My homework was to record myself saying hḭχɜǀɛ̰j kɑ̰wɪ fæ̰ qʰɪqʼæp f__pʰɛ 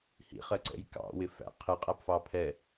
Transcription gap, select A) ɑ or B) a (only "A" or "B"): A